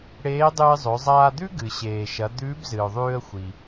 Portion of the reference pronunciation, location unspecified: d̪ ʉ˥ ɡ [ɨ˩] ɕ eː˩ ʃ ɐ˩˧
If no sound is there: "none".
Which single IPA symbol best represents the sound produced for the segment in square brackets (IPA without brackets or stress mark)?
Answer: ɨ˩